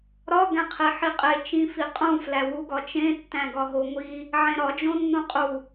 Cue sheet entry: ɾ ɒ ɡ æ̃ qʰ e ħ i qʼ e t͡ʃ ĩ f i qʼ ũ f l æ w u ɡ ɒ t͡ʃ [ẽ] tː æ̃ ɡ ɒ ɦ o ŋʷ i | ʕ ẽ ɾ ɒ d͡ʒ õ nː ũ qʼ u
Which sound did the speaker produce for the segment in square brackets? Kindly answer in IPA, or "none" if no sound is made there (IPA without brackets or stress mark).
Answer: ẽ